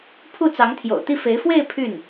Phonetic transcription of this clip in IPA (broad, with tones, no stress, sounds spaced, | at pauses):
pʰ u˥˩ t͡s ɑ˧˥ ŋ t̪ʰ j o̰˨˩ ʊ̯ t̪ i˥˩ f e˧˥ ɪ̯ f w e˥˧ ɪ̯ pʰ y˥˩ n